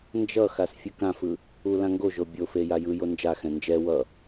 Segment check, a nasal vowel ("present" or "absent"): present